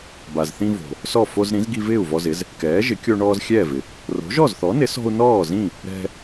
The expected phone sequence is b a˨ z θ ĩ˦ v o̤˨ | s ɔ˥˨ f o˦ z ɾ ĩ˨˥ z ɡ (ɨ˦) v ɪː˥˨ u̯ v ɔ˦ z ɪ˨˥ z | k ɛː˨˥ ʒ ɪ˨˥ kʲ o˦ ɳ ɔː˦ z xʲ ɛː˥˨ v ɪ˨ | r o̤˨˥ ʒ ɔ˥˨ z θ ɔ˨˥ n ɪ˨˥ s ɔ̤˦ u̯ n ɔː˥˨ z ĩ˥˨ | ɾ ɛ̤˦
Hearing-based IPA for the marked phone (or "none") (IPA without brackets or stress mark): i˦